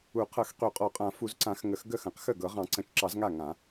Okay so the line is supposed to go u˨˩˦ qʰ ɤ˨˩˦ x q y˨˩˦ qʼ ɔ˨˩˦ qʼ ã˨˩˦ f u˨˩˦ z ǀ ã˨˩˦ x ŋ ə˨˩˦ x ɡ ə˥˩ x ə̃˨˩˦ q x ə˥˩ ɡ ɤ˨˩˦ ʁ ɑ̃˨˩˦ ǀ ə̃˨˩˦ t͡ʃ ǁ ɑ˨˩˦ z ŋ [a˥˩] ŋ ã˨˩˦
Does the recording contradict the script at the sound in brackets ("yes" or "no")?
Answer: no